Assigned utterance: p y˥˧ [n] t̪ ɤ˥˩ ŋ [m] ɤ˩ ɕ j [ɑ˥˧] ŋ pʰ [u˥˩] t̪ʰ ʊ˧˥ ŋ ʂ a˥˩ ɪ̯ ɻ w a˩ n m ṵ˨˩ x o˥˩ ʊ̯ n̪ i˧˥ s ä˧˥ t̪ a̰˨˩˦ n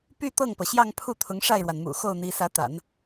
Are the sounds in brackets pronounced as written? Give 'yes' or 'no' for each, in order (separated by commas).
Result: no, no, yes, yes